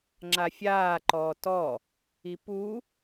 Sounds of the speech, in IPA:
ŋ͡ǁ a fʲ aː ǃ ɔː t ɔ | i p u

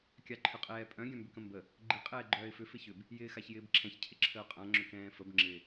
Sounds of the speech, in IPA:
kʲ a ǃʰ ʏ qʼ ɛː pʼ œ̃ ɡʲ œ̃ m b ʏ k ə̃ m b ə | ɡ͡ǃ ɪ qʼ ɛː ɡ͡ǃ œː ɪ̯ f ʏ f ɪ ç ʏ b | j ɪː x a ç j ɪː b ǁʰ ɛ̃ ç cʰ ɪ ǁʰ ə ʊ̯ qʼ ã ŋ͡ǁ ʏ k ɛ̃ː f ə b ŋ͡ǁ ɪ

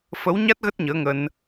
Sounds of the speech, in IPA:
f ə˨˦ w ɲ a˦˥ t̚ ɣ ə˦˥ t̚ ɲ əː˨˦ ŋ ə˧ n

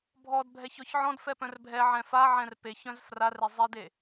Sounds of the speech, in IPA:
bʱ ɔ d bʱ ɛ ç ɔ ç ʕ ɔ̃ d f ɛ p œ̃ r bʱ ɛ ʕ ɛ̃ f a ʕ ɛ̃ r p e ç œ̃ z f r a r e zˤ e d e

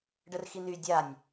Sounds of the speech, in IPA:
ɖ ə r x i n y dʲ a nʲ

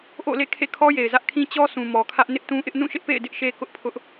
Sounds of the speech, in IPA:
ʔ o̰˦˨ l ḛ˦˨ kʰ ḛ˦˨ kʰ ɔ˦ j e˨ ɪ̯ z ä˦ ʔ kʰ ĩ˦ t͡ɕ ɔ˦ sʰ ũ˨ m ɔ˨ kʰ ä˦ ʔ n ɪ˦ ʔ t ũ˦ ʔ ɪ˦ ʔ n ũ˦˨ ʃ ɪ˦ ʔ p ḛ˦˨ ɪ̯ d ɪ˦ ʔ ʃ e˦ k ʊ˦ ʔ pʰ ʊ˦ ʔ

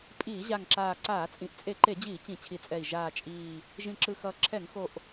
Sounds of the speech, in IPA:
pʼ iː˧˩˧ ʑ a˨˩ ŋ ǁ aː˨˩ ǀ aː˧˩˧ t͡sʼ ĩ˨˩ ʔ t͡sʼ e˧˩˧ ǃ e˧˩˧ d͡ʑ iː˧˩˧ t͡ɕ ĩ˧˩˧ t͡ɕʰ i˨˩ t͡sʼ ɛ˨˩ i̯ ʒ aː˨˩ t͡ʃʼ iː˨˩ | ʒ ĩ˨˩ ǁ ɯ˨˩ x ʌː˨˩ ǁʰ ɛ˧˩˧ ŋ x o˨˩ ʔ

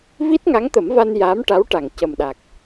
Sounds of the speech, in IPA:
v i˦˥ t̚ ŋ a˧˥ ŋ t̪ ə˨˩˦ m v a˧ n j a˧˥ m ʈ a˧˥ w ʈ a˨˩ ŋ c ə˨˩ m ɗ a˨˩ k̚

